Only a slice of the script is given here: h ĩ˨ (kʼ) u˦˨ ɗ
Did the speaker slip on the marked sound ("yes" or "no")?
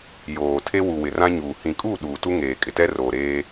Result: no